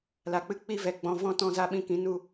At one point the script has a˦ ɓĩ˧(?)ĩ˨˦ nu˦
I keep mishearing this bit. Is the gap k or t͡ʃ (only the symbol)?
k